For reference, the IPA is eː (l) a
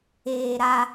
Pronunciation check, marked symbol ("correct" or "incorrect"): incorrect